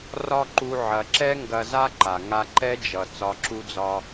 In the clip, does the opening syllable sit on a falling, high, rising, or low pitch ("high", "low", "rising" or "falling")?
high